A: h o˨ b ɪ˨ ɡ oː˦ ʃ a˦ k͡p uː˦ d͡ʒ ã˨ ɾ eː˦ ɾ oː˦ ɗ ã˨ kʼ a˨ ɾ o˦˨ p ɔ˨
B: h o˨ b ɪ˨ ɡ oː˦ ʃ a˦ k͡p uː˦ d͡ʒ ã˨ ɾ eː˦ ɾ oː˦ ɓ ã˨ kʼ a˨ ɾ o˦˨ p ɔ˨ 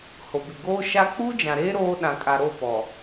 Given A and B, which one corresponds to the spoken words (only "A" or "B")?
A